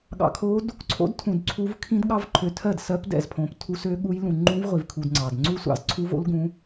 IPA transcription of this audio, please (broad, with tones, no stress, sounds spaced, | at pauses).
ɠ ɑ̰˧ kʰ o˦˥ d | ǀʰ o̰˦˥ d tʰ ũ˧ d ǀʰ u˦˥ v kʰ ĩ˦˥ d ɠ ɑ˦˥ v ǃʰ ø˧ tʰ ɜ˥˩ d s ɜ˦˥ p d ɛ̰˥˩ z pʰ õ˧ p tʰ u˦˥ s ø˦˥ ɠ u˦˥ j l ũ˧ ŋ͡ǃ ũ˦˥ v ʁʷ i˧ v kʰ u˧ d ŋ͡ǀ ɑ˧ d ŋ͡ǀ u˦˥ sʷ ɑ̰˥˩ z ǀʰ u˦˥ v o̰˦˥ l ɡ ũ˦˥